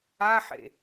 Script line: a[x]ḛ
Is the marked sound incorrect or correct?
incorrect